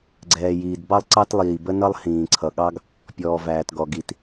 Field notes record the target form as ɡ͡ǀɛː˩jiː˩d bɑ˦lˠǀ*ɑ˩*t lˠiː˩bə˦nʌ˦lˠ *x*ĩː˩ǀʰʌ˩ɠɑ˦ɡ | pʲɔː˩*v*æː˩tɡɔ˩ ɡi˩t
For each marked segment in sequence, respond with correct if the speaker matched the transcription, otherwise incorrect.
incorrect: ɑ˦, incorrect: h, correct

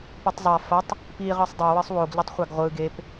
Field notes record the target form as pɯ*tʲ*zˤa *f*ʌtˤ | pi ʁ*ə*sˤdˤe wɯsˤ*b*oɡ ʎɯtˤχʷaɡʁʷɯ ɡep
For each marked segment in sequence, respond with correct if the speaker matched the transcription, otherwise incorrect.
incorrect: tˤ, correct, incorrect: ɯ, incorrect: w

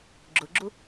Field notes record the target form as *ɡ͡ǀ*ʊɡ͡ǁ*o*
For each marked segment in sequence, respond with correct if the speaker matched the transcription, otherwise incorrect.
incorrect: ɡ͡ǁ, incorrect: u

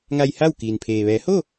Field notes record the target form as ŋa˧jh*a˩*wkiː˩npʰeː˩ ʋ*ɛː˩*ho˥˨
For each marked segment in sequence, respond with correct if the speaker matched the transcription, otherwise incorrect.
incorrect: a˥˨, incorrect: ɛː˩˧

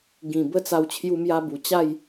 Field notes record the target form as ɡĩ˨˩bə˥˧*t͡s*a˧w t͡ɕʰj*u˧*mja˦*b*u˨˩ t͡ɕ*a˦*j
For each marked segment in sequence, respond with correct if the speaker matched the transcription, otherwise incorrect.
correct, incorrect: u˦, correct, incorrect: a˥˧

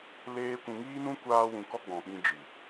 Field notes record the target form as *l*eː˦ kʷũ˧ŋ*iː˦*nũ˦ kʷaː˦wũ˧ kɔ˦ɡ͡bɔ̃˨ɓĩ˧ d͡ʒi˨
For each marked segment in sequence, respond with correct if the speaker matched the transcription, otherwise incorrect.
correct, correct

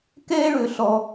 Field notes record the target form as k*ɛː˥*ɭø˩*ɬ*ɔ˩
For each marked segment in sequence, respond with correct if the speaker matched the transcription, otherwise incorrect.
correct, correct

